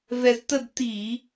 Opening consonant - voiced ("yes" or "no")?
yes